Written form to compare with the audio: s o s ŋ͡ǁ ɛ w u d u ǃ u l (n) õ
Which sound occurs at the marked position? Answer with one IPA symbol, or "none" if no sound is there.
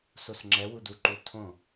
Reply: tʰ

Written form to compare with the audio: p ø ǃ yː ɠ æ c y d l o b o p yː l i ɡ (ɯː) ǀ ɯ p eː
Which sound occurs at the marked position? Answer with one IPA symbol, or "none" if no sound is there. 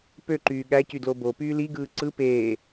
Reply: ɯː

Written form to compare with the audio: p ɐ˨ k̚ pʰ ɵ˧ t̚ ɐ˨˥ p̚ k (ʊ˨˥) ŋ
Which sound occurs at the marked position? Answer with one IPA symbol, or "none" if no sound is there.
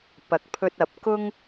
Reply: ʊ˥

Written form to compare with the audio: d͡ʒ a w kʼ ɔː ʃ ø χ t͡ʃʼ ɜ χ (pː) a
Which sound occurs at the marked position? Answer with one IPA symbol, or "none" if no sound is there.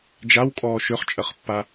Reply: pː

